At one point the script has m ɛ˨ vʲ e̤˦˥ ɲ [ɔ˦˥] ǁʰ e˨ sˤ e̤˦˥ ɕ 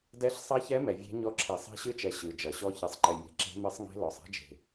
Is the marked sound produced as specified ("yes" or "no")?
yes